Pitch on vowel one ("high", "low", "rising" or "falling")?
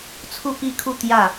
falling